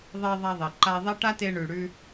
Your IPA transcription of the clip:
ðˤ e˧ ðˤ a˧ ðˤ e˩ ǃ a˧ ðˤ e˥ ʈ a˥ t e˧ ɳ ʉ˩ ɽ ʉ˧

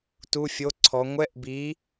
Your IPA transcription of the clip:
t u˧˥˧ fʲ o˧˥˧ ǀʰ ɔ˨˥ ŋʷ ɛ˧˥˧ ʔ b i˨˥

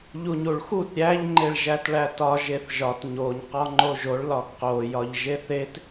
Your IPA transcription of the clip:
ʎ u ɲ u ɭ x u t ɾʲ æ ʎ ŋ͡ǃ e ɭ ʒ æ t ɭ æ t ɒ ʒ e θ ʒ ɒ t ɲ o ɲ q ɒ ŋ͡ǃ o ʒ o ɭ l ɒ ɡ q o j ɒ ʎ ʒ e θ e t

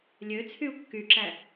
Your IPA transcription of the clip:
lʲ ø t͡sʰ y u̯ kː y ǁ æ

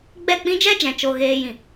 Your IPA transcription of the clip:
ɡ͡b ɛ˦˨ k͡p ĩ˦ d͡ʒ ɛ˦ d͡ʒ ɛ̃˨ t͡ʃ o˨ ɣ eː˧ j ĩ˨

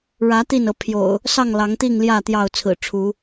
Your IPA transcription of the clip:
ɻ ä˨˦ t̪ i˥˨ n ɤ˨˦ pʰ j o̰˨˩ ʊ̯ | s ɑ˥˨ ŋ l ɑ˨˦ ŋ t̪ i˥˨ ŋ l j ä˥˨ t̪ j ɑ˥˨ ʊ̯ t͡sʰ ɹ̩˨˩ ʈ͡ʂʰ u˨˦

